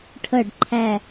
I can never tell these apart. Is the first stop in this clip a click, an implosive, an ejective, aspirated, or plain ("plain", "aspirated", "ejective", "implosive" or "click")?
aspirated